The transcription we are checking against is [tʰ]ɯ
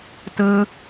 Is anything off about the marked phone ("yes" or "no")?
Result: yes